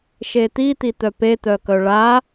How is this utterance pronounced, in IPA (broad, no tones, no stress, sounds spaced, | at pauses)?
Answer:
ʃ e t̪ i t̪ i t̪ œ p e t̪ œ k œ ɭ a